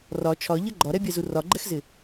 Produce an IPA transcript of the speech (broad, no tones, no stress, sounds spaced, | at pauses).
r ɒ t͡ʃʰ ɒ ʎ ʌ ɡ͡ǃ ɒ ɾ ɛ bʲ ɛ z u r ɒ ɡ͡ǃ ɛ x z ɪ